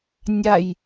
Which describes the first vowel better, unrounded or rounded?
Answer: unrounded